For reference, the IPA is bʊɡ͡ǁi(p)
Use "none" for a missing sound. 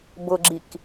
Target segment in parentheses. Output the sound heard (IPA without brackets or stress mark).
k